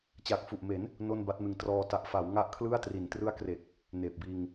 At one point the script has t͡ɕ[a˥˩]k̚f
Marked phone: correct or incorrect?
incorrect